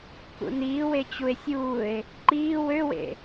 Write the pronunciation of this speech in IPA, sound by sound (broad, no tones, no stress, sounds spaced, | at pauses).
k ṵ n iː w e t͡ɕ u e̯ sʲ uː e̯ | ǃ iː w ø w ḛ